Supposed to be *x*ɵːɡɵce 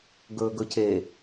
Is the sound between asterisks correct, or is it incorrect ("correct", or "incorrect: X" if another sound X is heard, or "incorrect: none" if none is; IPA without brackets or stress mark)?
incorrect: ɡ